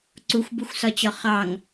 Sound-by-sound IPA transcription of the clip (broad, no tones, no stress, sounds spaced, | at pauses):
ǀ u xʷ b u xʷ s ɒ t͡ɕ ɒ χ ɑ ŋ